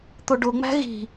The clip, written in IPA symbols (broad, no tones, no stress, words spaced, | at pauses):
t̪oɖoŋ͡mæ̤ ɣi̤